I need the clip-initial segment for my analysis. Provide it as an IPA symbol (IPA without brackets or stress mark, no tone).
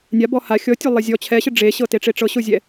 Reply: nʲ